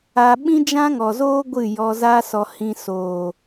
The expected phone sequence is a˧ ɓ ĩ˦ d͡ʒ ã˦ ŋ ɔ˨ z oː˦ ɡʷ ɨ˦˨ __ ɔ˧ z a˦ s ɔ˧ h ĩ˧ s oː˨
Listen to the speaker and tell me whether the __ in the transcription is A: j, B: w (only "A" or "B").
A